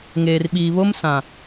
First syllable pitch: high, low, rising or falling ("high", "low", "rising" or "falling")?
low